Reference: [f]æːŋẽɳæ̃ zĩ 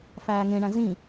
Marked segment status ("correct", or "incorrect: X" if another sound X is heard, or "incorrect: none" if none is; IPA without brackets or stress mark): correct